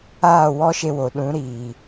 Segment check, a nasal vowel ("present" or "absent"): present